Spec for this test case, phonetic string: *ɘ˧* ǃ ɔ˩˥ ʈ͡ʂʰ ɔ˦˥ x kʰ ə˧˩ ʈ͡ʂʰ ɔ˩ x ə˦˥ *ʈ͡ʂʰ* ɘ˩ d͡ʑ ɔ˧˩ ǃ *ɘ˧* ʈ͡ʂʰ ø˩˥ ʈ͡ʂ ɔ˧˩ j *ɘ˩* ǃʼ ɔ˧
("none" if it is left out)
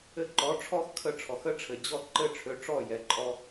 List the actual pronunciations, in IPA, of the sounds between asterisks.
ɘ˧, ʈ͡ʂʰ, ɘ˧˩, ɛ˩

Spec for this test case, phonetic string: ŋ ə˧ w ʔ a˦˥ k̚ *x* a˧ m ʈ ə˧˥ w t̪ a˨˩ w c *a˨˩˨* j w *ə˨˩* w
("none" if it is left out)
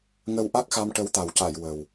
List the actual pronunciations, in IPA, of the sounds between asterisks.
x, a˨˩˨, ə˨˩

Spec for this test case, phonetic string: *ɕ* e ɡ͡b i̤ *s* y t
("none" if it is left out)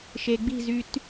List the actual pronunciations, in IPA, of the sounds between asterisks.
ʃ, z

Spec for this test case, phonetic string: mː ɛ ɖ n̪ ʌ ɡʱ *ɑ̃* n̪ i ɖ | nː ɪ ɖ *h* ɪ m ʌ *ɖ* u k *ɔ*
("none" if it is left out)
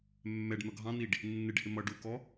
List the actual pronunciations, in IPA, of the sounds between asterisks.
ɑ̃, h, ɖ, ɔ

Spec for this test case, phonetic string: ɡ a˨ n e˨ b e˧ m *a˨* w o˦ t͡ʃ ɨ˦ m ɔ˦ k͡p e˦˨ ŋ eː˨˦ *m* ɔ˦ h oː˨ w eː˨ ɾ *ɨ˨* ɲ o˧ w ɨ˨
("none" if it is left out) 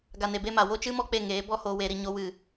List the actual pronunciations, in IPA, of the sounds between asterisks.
a˨, b, i˨

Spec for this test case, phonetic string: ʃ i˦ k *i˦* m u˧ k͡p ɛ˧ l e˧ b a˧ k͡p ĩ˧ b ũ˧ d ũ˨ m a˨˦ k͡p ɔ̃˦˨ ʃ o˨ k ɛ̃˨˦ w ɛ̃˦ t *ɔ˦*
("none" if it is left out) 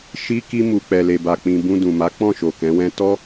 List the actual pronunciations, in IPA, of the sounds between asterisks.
i˦, ɔ˦

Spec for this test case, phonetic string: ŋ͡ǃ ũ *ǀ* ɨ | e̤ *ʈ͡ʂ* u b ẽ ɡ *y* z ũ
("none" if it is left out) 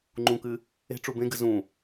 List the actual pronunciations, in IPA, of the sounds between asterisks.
k, ʈ͡ʂ, ɨ

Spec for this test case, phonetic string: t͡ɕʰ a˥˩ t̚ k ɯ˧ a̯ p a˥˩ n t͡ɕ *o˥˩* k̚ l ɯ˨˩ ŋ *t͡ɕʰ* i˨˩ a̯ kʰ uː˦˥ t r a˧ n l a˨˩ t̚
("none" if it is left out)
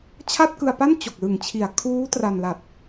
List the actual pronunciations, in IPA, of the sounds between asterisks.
o˨˩, t͡ɕʰ

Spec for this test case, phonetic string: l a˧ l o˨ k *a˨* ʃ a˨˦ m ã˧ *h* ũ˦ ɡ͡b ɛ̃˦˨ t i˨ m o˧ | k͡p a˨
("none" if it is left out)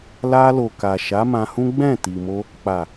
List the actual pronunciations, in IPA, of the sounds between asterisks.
a˨, h

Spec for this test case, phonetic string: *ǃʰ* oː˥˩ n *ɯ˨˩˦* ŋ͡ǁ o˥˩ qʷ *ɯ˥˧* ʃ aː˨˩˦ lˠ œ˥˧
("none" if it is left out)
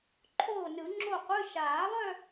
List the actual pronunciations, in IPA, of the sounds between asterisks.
ǃʰ, ɯ˨˩˦, ɯ˧˥˧

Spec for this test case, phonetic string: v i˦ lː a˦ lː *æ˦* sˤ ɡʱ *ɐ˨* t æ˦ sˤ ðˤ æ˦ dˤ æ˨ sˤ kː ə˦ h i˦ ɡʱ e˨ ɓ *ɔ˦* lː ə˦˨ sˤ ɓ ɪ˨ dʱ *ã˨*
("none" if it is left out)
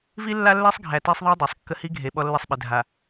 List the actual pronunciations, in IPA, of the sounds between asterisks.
æ˦, æ˨, ɔ˦, a˨

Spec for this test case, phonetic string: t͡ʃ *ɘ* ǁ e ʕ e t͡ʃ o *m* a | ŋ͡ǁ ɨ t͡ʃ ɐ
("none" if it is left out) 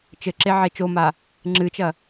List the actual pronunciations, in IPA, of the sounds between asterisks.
ɘ, m

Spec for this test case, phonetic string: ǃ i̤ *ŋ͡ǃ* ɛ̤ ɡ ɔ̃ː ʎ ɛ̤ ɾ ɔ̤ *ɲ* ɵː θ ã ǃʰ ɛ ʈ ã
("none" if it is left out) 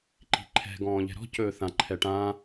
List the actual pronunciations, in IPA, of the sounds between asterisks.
ǃʰ, c

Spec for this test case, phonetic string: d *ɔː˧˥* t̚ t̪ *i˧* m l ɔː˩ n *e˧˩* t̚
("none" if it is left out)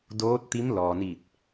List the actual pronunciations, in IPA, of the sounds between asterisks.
oː˧˥, i˧˥, i˧˩

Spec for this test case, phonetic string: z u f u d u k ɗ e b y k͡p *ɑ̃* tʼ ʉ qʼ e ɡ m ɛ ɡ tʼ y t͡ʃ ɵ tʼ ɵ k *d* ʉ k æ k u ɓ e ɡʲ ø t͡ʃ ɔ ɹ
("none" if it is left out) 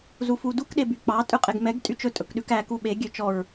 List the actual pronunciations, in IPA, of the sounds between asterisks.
ɑ, ɗ

